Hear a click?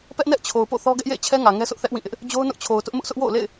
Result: no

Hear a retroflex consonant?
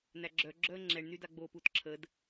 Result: yes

